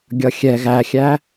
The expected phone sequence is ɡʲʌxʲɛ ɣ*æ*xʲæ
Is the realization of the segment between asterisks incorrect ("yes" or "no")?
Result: no